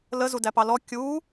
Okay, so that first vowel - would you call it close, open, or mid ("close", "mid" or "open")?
mid